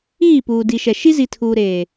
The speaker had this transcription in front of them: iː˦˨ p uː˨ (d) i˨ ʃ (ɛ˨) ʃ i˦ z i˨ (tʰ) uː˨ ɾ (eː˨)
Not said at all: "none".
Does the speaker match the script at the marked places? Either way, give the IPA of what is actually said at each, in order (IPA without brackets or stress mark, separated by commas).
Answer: d, ɛ˨, tʰ, eː˨